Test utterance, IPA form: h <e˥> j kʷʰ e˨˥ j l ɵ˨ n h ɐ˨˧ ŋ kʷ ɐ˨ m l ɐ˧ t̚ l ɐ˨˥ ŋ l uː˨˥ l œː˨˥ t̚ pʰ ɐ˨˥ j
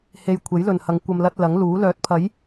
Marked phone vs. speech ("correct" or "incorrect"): incorrect